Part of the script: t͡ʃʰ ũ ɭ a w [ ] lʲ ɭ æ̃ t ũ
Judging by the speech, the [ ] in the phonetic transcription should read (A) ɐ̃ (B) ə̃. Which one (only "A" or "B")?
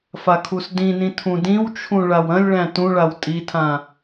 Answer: A